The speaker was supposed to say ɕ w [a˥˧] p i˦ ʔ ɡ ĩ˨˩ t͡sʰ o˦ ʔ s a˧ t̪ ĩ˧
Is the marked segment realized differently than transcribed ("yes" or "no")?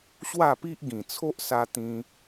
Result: no